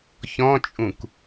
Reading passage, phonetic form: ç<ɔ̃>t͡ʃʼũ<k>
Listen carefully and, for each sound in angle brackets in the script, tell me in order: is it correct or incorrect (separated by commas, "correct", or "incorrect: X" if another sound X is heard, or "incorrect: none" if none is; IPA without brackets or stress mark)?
correct, correct